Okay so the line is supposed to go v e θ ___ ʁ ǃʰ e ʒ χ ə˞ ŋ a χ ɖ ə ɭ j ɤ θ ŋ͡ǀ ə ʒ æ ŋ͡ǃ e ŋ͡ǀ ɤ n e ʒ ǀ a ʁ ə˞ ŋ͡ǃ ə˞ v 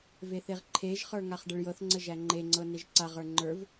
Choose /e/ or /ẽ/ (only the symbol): e